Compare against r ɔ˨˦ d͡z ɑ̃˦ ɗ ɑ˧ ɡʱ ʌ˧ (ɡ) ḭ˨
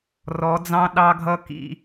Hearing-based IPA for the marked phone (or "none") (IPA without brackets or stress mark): k